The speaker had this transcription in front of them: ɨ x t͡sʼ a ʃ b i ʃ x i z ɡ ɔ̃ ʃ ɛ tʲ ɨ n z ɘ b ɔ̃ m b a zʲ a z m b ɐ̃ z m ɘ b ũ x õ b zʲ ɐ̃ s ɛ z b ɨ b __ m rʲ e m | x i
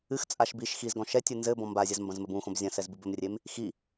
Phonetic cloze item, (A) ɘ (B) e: A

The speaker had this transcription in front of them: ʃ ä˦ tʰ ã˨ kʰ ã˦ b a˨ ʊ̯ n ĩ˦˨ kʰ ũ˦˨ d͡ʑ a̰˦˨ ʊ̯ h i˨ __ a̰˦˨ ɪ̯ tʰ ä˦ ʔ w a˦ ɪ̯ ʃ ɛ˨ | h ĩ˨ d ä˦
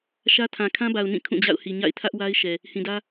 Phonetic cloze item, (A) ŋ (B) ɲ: B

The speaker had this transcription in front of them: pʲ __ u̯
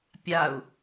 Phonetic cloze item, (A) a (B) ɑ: A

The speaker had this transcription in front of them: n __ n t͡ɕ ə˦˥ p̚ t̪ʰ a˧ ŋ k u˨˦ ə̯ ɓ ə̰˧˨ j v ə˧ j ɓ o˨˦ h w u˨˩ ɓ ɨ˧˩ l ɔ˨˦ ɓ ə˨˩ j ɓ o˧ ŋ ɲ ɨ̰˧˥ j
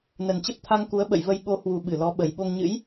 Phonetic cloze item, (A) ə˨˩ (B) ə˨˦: A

